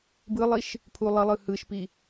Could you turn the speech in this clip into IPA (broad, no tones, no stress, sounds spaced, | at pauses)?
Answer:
b ɯ lˠ i ʃ | pʰ u lˠ ʌ lˠ ɯ h ɯ ʃ p i